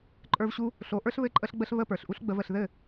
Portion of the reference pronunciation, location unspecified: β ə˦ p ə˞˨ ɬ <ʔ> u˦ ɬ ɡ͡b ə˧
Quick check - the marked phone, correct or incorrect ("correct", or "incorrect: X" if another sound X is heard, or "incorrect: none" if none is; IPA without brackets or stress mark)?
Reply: correct